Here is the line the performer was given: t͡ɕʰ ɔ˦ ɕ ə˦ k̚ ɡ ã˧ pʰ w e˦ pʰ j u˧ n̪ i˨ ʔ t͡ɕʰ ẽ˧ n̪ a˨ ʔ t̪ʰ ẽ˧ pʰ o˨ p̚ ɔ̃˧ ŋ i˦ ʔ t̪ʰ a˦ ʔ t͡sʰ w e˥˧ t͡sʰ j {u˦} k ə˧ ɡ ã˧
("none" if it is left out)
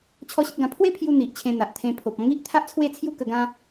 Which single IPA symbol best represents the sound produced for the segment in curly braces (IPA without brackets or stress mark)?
u˦